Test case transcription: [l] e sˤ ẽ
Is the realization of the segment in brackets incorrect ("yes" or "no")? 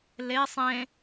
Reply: no